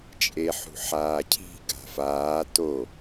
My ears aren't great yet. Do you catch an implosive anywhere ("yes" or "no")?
no